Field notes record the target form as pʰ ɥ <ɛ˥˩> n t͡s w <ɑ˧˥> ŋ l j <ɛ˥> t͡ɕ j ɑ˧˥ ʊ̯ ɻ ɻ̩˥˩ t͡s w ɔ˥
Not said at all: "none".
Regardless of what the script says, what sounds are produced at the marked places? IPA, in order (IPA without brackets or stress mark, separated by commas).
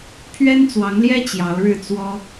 ɛ˥, ɑ˧˥, ɛ˥